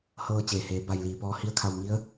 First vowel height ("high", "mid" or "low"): mid